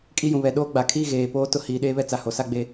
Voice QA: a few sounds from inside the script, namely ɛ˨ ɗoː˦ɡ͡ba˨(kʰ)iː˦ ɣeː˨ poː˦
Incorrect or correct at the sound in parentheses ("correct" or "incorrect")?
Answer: correct